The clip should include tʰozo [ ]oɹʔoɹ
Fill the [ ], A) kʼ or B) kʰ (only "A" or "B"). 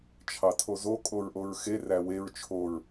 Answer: A